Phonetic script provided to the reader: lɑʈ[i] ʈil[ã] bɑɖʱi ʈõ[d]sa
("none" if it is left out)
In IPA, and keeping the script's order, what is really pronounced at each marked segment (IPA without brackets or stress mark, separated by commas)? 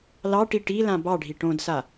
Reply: i, ã, d